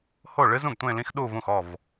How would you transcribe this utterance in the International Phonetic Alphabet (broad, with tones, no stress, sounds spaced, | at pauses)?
h o˥˩ ɭ ɨ˥ z ũ˥˩ ɡ tʷ ẽ˥˧ l ĩ˥ x ɗ u˥˧ v ũ˥˩ x ɔ˥˩ v